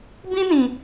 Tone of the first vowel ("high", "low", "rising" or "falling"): high